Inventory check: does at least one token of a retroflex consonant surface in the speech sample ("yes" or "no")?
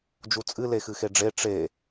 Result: yes